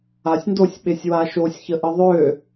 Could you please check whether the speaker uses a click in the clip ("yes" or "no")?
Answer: no